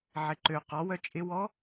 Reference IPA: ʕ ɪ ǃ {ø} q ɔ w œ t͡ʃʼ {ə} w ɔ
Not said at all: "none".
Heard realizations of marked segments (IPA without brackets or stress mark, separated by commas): ø, ɪ